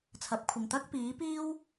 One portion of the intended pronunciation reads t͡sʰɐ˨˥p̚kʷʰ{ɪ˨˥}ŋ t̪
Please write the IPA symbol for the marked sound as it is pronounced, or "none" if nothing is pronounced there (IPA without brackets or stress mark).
ɪ˨